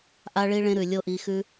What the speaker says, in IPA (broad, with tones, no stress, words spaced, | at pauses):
ʔa˧ɭi˧ɭẽ˧ ɾʉ˨lʲo˦˨ʔi˧xʉ˦